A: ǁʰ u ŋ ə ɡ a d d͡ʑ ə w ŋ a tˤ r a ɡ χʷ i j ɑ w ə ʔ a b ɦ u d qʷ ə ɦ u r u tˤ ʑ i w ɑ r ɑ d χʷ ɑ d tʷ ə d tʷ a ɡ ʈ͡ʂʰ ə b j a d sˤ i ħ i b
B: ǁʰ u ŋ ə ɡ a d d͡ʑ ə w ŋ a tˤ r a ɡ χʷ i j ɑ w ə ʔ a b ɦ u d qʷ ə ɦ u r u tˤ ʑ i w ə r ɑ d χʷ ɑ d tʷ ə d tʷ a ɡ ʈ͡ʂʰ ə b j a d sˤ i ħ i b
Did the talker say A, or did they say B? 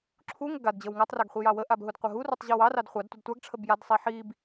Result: A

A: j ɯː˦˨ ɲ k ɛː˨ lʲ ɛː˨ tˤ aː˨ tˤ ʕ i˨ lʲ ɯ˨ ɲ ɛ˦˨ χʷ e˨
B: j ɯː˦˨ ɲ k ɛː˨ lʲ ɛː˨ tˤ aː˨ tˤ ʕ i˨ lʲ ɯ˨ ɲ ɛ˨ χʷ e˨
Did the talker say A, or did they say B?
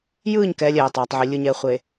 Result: B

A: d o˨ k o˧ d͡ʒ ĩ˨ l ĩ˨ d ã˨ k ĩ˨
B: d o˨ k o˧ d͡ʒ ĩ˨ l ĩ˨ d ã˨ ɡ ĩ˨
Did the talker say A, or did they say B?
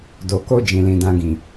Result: B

